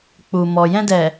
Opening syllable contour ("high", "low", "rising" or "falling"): low